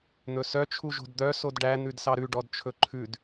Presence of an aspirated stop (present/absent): present